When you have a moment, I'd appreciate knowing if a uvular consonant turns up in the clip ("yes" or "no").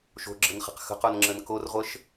yes